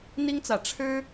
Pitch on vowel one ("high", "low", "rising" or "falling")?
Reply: high